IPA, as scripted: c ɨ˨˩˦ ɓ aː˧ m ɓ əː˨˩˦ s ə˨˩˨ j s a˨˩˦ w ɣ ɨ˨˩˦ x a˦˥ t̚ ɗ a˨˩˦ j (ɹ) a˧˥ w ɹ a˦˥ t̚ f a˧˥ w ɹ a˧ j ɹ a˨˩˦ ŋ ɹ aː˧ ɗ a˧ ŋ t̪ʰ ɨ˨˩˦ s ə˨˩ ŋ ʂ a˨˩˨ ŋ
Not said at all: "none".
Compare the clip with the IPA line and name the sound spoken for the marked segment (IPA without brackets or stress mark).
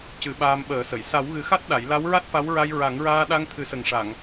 l